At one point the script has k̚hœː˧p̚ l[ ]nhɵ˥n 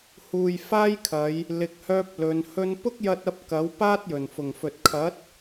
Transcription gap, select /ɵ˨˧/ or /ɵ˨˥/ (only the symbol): ɵ˨˧